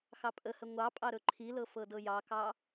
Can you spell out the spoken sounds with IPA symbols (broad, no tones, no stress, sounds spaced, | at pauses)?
x ɑ pʼ ə h ə ŋʷ ɑ pʼ ɑ ɾ ɵ ǃʰ i l ɤ f ɤ d ɤ j ɑ k ɑ